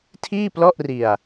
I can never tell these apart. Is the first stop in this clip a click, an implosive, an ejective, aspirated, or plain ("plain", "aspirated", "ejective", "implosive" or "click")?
aspirated